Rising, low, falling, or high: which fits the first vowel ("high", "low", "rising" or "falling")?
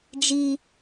high